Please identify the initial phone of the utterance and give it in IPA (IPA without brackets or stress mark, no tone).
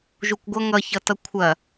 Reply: ʒ